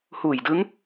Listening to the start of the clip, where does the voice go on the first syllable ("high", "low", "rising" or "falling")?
low